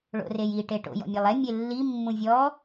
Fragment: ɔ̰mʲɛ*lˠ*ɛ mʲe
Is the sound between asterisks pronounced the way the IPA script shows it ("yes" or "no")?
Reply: yes